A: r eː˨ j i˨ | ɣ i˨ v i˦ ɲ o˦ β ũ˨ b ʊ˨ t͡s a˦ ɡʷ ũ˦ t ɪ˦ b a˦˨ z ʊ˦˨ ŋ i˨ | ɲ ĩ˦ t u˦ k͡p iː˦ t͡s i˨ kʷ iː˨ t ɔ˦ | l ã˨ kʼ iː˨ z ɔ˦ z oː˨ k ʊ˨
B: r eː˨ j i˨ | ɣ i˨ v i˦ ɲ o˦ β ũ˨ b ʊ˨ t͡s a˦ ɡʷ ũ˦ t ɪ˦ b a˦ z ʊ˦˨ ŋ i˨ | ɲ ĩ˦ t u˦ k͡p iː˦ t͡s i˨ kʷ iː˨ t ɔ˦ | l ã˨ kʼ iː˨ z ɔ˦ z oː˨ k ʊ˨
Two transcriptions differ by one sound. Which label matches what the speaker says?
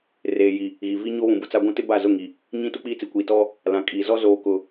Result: A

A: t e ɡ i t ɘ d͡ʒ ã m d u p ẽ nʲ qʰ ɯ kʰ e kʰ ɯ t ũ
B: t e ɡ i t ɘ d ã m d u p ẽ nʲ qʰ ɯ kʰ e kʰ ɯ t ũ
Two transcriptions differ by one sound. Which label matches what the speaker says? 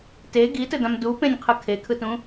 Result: B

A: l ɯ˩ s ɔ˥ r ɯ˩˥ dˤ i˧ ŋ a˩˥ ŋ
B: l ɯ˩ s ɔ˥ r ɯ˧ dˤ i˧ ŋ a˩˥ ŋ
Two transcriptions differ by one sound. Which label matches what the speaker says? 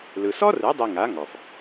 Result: A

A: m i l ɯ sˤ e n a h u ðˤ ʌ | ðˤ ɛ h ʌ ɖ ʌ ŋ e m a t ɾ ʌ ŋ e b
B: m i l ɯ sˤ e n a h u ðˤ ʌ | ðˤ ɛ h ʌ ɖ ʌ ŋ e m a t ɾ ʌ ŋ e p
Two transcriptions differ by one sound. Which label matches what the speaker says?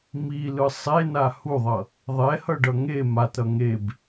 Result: A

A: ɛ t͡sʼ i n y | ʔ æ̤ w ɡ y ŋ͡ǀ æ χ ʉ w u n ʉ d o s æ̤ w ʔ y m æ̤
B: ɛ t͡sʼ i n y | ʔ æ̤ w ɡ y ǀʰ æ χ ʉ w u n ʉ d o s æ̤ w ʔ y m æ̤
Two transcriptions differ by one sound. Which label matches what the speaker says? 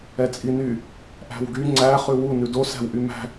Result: A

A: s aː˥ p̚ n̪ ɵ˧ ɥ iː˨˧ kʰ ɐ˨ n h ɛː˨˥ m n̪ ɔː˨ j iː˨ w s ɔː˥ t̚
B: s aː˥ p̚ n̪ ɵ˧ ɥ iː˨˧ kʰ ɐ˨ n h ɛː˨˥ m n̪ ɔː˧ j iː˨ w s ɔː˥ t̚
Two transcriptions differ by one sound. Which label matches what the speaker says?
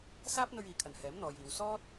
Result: A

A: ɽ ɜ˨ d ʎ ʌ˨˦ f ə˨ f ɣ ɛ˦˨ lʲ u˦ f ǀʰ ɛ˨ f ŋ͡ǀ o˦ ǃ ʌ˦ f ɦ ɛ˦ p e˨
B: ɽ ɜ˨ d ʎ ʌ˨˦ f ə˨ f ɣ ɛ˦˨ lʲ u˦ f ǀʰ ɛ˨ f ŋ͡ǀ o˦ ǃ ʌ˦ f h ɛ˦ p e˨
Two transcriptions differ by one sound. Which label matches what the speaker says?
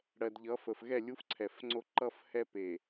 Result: B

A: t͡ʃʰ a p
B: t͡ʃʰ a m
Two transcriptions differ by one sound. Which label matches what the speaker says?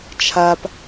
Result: A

